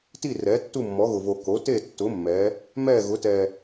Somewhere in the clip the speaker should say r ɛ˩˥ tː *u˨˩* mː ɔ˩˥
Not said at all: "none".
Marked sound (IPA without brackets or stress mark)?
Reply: u˥˨